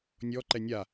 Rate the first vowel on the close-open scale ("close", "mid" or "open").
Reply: mid